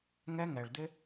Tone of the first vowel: high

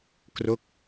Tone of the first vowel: falling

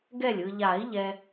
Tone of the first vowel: falling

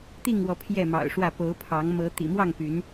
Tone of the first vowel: falling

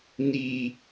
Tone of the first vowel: low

